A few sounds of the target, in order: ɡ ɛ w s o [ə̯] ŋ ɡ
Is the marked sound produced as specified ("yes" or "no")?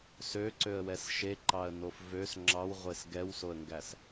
yes